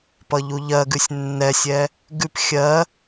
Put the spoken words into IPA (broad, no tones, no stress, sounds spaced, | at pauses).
p ʌ ʎ u ʎ ɜ ɡ ʉ sʲ nː ɛ sʲ ɛ | ɡ ʉ p xʲ ɜ